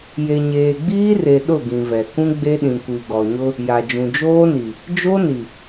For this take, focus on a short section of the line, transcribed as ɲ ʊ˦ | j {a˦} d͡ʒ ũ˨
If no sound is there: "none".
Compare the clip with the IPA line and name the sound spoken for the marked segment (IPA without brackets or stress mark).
a˨